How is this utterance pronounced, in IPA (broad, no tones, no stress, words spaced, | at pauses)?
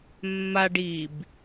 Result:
mːaɖ ib